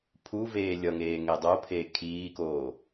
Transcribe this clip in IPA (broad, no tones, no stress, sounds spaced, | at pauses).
pʰ u v eː lʲ ʌ ŋ eː ŋ e dˤ o pʰ eː kʰ iː k oː